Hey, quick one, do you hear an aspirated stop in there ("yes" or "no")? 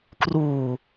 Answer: no